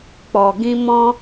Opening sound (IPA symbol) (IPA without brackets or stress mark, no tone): k͡p